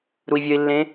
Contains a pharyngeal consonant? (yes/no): no